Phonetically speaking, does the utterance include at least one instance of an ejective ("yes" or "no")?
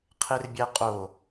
yes